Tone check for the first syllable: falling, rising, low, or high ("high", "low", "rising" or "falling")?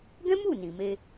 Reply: high